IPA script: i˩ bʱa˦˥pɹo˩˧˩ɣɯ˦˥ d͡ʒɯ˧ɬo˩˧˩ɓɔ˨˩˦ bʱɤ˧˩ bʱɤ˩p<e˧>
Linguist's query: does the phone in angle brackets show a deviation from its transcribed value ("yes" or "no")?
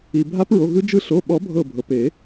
yes